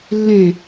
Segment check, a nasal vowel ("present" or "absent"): present